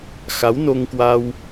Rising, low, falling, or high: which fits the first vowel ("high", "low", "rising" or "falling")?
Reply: rising